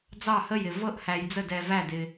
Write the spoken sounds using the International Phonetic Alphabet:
d͡zɑ˥˨hə˥˨jɪ˧ vɤ˥˨ʔhæ˧jd͡zə˥˨ dɛ˧væ˥˨dɪ˧

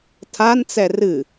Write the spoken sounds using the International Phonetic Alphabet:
tʰant͡sɛ rɨ

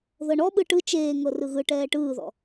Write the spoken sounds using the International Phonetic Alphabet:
ðɤɳɔɓɯ ʈɯ t͡ʃeːŋɤ rɯɣɯʈɛː ʈɯːðɔ̰

